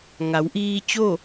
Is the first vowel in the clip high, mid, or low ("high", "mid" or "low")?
low